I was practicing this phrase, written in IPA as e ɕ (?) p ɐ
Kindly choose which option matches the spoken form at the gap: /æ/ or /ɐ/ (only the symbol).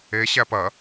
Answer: æ